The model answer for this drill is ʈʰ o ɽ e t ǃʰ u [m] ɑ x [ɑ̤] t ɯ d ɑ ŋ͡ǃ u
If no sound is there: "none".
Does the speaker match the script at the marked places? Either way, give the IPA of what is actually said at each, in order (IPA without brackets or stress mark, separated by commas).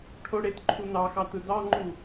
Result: n, ɑ